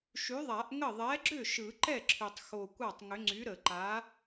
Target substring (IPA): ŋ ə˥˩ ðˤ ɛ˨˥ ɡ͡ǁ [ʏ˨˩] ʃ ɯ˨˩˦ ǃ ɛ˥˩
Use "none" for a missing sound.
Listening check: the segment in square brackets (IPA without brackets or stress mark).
ʏ˥˩